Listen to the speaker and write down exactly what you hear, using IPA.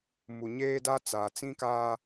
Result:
m u˨ ɲ eː˦ d a˦ t͡s a˨ t͡s ĩ˦ k aː˦

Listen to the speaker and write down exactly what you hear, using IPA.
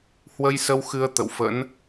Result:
h w ə˧ j s ə˧ w x ɨ˧ ə̯ t̪ ə̰˧˨ w f ə̰˧˥ n

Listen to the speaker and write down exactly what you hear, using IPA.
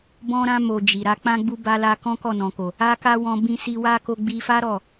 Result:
b ɔ̃˦ ɾ ã˦ m o˧ d͡ʒ i˨ ɾ a˨˦ k͡p ã˦ ɡ͡b u˦ b a˧ l a˧ k ɔ̃˦ k ɔ˦˨ n ɔ̃˨ k o˨ | a˦ k a˦ w ɔ̃˧ b ĩ˧ s i˧ w a˦ k o˧ ɡ͡b i˧ f a˦ ɾ ɔ˦˨

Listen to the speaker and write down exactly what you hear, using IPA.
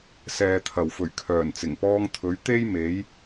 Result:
s ɛː˨ t̪ʰ ɐ˨˩ w f ɵ˨˩ ɥ kʰ œː˨˩ n t͡s ɪ˨˩ ŋ p ɔː˧ ŋ t̪ʰ ɵ˨˥ ɥ t̪ e˥ j m e˨˥ j

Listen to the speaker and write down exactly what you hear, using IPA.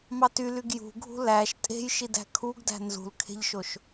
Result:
m ɑ t y l y ɡ j ṳ ɡʱ ṳ l æ ʃ tʼ e̤ j ʃ i d æ̤ kʰ u ɡ d æ̤ n z ṳ l kʰ e̤ ʎ ʃ o ʃ

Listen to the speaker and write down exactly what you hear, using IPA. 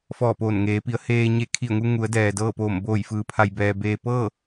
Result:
f ɔː˧˩ p oː˧˩ n ŋ eː˩˧ p i˩˧ ə̯ h eː˧ ɲ e˧˩ kʰ i˧˩ ə̯ ŋ u˧ ŋ u˩˧ ə̯ d ɛː˩ d ɤː˥˨ p oː˧˩ m b oː˧˩ j f ɯː˩˧ pʰ a˩ j b ɛː˩ b eː˧ p ɤː˥˨

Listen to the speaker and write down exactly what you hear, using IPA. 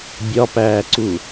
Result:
bʲ ɒ p æː ǀ u

